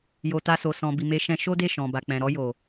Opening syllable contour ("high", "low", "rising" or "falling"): low